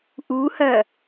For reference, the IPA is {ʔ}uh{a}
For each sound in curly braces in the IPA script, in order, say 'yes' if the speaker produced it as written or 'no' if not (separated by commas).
yes, no